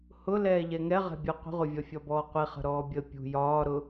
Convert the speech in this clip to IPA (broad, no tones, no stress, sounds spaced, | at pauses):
h ʊ l ɛː ʎ ɛ ŋ ɛ ʁ ɛ̤ bʲ ʌ qʷ ə̤ ʁʷ ʌ vʲ ɒ fʲ ɒ b ɔː qʷ i χ ə̤ ɾ ɔː bʲ ə pʲ ṳ j ɒː ɾ ʊ